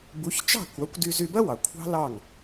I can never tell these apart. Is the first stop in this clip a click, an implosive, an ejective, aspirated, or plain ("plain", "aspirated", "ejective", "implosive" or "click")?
plain